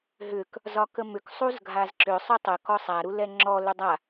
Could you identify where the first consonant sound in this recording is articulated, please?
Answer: glottal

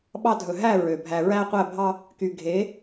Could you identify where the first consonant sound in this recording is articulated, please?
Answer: labial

